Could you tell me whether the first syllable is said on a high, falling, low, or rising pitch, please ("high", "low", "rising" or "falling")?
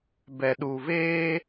low